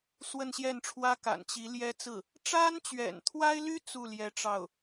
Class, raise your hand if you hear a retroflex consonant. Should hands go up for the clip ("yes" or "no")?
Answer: yes